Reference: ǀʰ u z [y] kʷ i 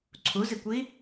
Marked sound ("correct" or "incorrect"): incorrect